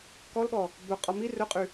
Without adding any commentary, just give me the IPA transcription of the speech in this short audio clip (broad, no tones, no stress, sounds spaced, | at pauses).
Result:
k ɔ l ɠ ɔ | b œ qʼ ɔ m i r ɵ qʼ y